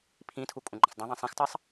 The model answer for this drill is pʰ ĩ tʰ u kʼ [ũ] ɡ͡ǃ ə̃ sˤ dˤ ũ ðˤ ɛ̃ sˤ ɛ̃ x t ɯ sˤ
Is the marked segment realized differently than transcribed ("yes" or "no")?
no